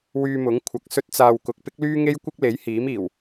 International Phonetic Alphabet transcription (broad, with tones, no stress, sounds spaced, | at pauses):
w yː˧ m ʊ˨˥ ŋ kʷʰ ɐ˨ k̚ s ɵ˧ t̚ t͡s aː˨ w k ʊ˨ k̚ p ɪ˥ k̚ l yː˥ ŋ e˥ j kʷ ɐ˥ k̚ l e˨˥ j h iː˨˥ m iː˨˩ w